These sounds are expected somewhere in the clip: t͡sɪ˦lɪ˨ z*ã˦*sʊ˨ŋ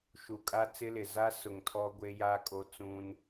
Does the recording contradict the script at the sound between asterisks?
yes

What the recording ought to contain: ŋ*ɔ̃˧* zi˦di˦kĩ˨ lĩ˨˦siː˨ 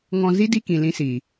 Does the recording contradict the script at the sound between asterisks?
no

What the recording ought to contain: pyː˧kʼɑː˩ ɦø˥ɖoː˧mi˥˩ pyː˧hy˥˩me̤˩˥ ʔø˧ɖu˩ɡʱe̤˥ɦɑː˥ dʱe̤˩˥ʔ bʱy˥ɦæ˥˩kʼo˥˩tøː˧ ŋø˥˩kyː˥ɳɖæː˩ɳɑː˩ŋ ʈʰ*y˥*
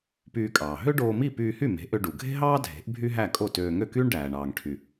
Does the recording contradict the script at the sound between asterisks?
yes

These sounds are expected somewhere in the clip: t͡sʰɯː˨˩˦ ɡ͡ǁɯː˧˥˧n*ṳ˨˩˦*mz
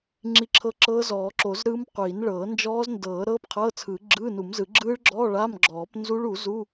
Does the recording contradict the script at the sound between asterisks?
yes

